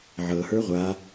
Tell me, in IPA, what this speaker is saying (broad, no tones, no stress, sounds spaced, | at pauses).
ʕ ɤ h ə˞ ʁʷ a